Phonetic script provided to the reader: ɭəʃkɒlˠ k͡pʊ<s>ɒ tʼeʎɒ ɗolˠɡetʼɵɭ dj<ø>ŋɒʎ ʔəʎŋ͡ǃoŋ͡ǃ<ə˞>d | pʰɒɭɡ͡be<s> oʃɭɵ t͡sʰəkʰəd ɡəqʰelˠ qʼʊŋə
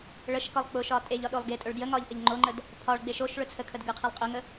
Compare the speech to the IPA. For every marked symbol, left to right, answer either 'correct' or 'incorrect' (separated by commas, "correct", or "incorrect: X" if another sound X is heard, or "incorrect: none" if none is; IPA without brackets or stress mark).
incorrect: ʃ, incorrect: ə, incorrect: ə, incorrect: ʃ